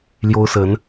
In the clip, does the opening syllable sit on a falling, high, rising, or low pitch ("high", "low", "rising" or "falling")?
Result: high